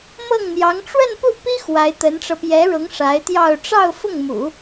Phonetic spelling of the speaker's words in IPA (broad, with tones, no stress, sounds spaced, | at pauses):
m ɤ˥˩ ŋ n̪ j ɑ˧˥ ŋ ʈ͡ʂ w ə˥˧ n p u˥˩ p i˥ x w a˧˥ ɪ̯ t̪ ə˧˥ n ʈ͡ʂ ɤ˧ p j ɛ˧˥ ɻ ʊ˧˥ ŋ ʂ a˧˥ ɪ̯ t̪ j ɑ˥˧ ʊ̯ ʈ͡ʂ ɑ˥˧ ʊ̯ f ʊ˥˩ ŋ m ṵ˨˩˦